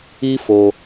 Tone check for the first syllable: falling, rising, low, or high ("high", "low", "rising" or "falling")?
high